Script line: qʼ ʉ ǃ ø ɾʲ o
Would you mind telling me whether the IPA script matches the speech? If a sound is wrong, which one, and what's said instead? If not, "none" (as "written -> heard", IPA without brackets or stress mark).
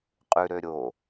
ǃ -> ɾ